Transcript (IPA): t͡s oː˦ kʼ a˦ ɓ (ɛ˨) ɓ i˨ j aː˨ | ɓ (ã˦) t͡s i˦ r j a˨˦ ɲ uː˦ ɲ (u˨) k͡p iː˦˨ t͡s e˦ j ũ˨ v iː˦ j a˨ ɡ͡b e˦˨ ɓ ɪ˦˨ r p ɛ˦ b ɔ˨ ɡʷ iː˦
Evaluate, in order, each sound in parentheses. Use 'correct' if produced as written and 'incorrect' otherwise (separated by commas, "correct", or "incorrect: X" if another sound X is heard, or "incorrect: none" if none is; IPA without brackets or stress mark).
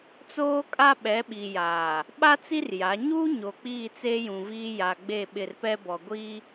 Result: incorrect: ɛ˨˦, incorrect: a˦, incorrect: o˨